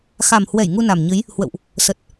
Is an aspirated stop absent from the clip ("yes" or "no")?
yes